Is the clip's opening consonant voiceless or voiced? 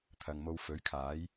voiceless